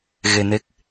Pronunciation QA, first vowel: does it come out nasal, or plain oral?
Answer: oral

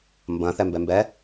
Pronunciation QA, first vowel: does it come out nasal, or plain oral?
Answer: nasal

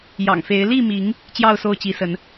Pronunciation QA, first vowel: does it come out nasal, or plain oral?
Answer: oral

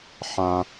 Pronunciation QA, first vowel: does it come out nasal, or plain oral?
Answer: nasal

